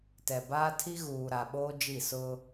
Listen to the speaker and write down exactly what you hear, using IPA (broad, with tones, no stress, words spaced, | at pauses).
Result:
tɛ˨ baː˦tʰi˦ɣuː˨ ɾa˨ɓoː˦ d͡ʒi˦˨ sʊ˦